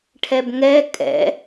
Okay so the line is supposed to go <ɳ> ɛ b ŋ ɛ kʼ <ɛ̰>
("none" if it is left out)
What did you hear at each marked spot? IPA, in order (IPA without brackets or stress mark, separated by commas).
ʈʰ, ɛ̰